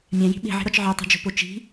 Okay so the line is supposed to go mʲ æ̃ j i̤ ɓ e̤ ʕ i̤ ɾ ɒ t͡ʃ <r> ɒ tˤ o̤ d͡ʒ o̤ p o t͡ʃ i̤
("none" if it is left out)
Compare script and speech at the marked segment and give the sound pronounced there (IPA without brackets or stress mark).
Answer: ʕ